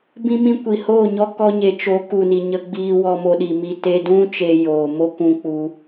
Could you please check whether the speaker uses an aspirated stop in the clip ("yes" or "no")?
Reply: no